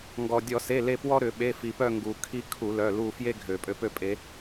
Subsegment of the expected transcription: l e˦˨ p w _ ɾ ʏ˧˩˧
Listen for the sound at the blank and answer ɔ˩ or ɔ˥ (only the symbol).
ɔ˥